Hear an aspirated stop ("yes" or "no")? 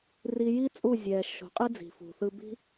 no